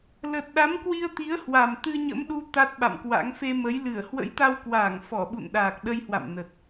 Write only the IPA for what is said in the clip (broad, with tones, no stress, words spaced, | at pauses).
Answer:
lə˨˩t̚ɗa˨˦mkwi˧ə̯t̪i˨˦ə̯ hwa˨˩mt̪ɨ˧ɲə̰˧˥mɗu˧ t̪a˦˥t̚ɓa̰˧˨mkwa̰˧˥ŋ fe˧mə˨˦jlɨ˧˩ə̯ hwə̰˧˥jt̪a˧wkwaː˧˩ŋ fɔ˧˩ɓṵ˧˨nɗaː˨˩k̚ ɗə˧jhwa̰˧˨m nə˨˩t̚